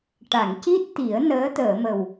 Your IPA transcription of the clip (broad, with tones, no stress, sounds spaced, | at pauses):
ʈ a˨˩˨ ŋ c i˦˥ t̚ t̪ i˨˩˦ ə̯ n əː˧˥ t̪ əː˨˩˨ m ə˨˩ w